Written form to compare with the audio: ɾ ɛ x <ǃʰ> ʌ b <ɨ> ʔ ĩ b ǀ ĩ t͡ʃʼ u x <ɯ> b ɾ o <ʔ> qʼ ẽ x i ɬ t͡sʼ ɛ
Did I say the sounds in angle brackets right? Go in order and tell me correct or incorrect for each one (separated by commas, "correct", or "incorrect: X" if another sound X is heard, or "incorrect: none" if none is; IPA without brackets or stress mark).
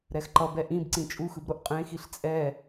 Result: incorrect: ǃ, incorrect: ɛ, correct, correct